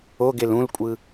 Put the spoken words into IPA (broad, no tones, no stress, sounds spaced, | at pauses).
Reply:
o ɡ e l ũ l kʷʼ ɯ